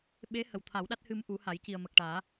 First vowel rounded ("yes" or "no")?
no